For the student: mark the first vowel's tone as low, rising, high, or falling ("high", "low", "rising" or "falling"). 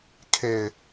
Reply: low